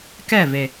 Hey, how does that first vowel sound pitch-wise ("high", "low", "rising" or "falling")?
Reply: falling